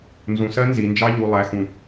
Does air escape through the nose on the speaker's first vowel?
yes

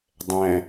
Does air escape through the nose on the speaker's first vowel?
yes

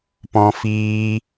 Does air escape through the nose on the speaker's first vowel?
yes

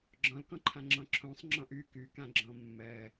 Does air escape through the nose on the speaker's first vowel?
yes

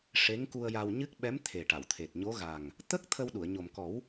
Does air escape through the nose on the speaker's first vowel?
no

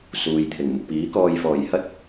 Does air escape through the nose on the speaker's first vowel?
no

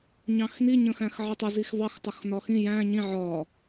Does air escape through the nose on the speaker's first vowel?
yes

